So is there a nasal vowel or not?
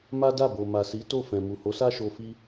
yes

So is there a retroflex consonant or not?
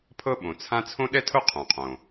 no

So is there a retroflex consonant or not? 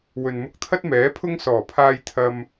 no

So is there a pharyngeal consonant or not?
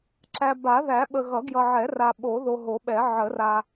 yes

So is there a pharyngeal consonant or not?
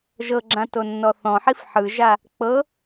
yes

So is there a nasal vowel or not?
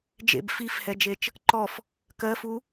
no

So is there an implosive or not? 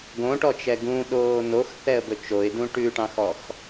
yes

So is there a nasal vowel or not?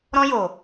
yes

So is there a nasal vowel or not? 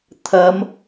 no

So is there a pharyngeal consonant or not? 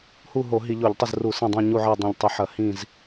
yes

